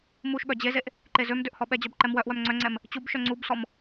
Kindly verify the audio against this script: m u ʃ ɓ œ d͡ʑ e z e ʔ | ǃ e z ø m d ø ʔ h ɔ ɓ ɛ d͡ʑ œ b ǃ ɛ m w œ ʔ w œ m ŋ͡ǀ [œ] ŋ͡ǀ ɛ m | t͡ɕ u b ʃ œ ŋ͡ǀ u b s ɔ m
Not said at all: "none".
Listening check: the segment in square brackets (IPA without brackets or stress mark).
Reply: œ